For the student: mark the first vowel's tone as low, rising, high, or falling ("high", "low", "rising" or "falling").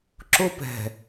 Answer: high